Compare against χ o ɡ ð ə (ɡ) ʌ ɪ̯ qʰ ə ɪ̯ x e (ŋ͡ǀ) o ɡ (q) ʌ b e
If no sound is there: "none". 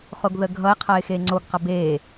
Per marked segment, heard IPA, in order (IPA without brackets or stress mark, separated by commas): ɡʱ, ŋ͡ǀ, q